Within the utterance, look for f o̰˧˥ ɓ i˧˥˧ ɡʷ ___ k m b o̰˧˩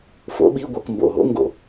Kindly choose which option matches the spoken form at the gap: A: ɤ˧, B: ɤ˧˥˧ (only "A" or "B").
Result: A